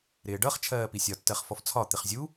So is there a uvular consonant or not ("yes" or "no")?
yes